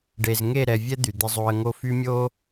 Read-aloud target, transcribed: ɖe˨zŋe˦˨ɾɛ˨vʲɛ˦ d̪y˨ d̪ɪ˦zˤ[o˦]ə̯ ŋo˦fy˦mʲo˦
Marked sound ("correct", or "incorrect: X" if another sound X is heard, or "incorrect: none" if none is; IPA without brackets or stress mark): correct